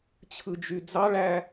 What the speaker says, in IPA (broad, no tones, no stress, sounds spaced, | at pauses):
t͡ɕʰ ɯ d͡ʒ y d͡z ɑ ɭ æ